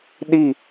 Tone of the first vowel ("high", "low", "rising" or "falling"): falling